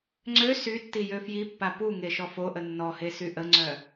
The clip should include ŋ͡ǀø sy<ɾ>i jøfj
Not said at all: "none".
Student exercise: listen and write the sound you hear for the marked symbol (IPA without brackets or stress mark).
tː